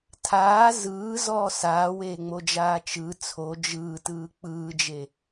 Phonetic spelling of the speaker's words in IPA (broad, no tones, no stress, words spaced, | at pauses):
tʰaː zɯːzɔː saːweːŋ͡mod͡ʒaː t͡ʃɯ t͡sʰo d͡ʒɯːtɯː k͡pɯːd͡ʒe